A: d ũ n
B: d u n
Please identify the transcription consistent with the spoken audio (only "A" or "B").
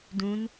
A